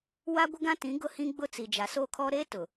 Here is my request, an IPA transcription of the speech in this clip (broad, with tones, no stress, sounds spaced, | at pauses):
w a˦ ɡʷ ɪ˦ ɡ ã˦ t ĩ˨˦ ɡ ʊ˦ h ĩ˦ ɡ͡b ʊ˦ t͡s i˨ d͡ʒ a˨ s oː˦ kʰ ɔ˦ ɾ eː˦ t ʊ˨